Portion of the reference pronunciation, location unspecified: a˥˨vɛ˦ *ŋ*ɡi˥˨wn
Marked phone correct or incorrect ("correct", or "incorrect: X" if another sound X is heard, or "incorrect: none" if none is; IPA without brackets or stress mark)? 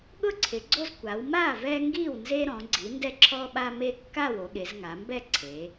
correct